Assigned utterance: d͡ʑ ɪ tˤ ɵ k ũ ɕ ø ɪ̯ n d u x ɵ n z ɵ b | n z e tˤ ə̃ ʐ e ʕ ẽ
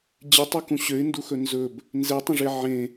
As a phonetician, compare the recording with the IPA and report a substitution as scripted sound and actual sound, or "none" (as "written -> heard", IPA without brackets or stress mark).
none